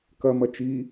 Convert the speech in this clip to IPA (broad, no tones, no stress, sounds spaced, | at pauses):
k ɐ m ɐ t͡ʃ i